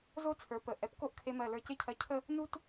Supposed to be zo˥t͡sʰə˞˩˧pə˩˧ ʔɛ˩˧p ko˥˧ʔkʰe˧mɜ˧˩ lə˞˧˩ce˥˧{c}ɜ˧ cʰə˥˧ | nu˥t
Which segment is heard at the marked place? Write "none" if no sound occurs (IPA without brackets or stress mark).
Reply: cʰ